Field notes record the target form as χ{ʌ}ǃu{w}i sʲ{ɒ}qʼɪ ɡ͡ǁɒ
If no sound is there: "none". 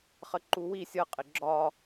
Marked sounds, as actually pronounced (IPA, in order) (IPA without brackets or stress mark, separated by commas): ə, w, ʌ